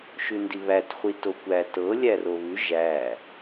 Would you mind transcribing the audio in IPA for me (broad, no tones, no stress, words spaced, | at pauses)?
ʃʉndiβæt χʷitokʷæ tɤ lʲæroβʉ ʒæ